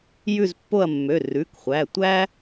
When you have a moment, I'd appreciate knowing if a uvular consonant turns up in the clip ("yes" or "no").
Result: yes